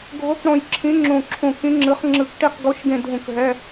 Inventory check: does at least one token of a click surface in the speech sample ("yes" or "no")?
yes